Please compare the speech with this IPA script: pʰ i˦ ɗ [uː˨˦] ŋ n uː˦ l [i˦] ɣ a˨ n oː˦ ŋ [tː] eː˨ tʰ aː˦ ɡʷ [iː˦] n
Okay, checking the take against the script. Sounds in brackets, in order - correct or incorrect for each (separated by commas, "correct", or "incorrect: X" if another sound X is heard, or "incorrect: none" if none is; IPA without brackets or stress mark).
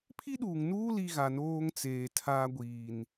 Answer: incorrect: uː˨, correct, incorrect: t͡s, incorrect: iː˨